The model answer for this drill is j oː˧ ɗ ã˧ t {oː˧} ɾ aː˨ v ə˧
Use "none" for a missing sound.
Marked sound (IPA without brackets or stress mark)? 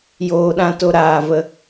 o˧